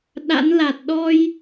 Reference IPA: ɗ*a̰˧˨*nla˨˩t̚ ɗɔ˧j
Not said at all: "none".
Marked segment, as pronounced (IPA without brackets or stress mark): a̰˧˥